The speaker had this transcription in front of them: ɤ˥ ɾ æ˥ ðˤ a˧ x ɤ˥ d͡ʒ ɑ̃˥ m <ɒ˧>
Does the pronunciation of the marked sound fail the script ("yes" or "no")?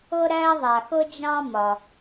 no